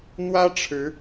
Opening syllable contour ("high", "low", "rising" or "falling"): high